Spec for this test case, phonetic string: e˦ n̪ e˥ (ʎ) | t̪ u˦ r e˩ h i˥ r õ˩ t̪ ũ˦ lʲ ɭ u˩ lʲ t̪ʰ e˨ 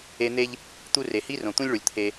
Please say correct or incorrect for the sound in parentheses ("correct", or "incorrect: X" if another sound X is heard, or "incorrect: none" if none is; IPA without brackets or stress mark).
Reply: correct